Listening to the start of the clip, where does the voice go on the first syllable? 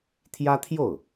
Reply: high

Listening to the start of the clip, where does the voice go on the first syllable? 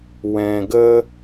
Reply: low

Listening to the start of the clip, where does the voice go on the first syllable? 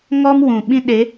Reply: high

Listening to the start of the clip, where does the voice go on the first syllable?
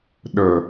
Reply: low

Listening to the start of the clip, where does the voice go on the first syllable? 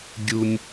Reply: low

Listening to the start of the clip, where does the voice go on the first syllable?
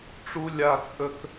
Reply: high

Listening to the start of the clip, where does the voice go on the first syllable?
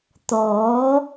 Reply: rising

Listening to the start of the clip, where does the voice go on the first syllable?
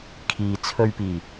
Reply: low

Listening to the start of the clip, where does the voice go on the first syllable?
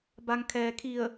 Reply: low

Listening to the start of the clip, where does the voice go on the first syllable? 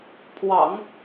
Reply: low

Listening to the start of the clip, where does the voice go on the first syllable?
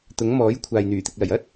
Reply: rising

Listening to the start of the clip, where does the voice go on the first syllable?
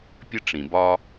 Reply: high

